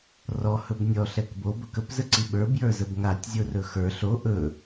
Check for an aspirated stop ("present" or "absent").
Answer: absent